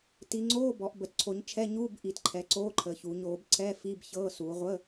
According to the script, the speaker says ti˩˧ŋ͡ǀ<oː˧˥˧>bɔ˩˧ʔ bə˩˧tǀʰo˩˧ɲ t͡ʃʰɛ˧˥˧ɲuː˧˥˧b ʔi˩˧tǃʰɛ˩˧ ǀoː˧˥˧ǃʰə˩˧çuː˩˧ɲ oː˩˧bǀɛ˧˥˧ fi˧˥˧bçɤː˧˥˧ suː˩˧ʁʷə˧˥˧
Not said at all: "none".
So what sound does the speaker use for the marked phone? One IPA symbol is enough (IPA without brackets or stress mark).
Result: oː˧˥˧